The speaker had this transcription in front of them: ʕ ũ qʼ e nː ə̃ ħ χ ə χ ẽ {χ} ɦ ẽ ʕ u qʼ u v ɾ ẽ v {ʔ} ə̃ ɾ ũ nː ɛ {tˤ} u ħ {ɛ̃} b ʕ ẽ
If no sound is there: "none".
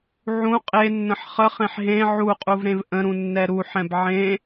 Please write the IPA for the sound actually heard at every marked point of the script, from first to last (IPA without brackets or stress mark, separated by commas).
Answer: ħ, ʔ, ɾ, ɛ̃